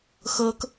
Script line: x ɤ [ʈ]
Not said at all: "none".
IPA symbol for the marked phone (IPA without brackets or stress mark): k